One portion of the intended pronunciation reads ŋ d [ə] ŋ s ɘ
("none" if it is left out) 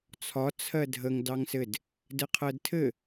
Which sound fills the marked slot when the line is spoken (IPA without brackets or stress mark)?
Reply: ɑ